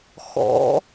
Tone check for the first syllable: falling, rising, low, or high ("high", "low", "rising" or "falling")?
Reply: rising